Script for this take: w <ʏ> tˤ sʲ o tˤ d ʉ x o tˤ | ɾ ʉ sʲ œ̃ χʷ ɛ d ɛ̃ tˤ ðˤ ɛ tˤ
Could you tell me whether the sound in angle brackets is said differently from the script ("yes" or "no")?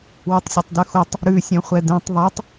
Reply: no